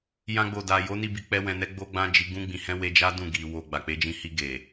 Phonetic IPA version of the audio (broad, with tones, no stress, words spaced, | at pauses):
jã˧ɡ͡bo˨da˨ jo˨˦ni˧bi˨k͡pɛ˧ wɛ̃˨nɛ˧ ɡ͡bo˦ɡ͡bã˦d͡ʒi˧ ɡũ˧ɡ͡bĩ˨hɛ̃˧ we˧d͡ʒa˦ dũ˦˨ɡi˨ wo˨ ɡ͡ba˨k͡pe˨˦d͡ʒĩ˧hi˧ ɡe˨